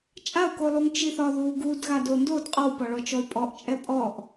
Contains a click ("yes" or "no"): no